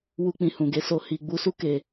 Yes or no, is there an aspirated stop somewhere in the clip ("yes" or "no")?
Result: no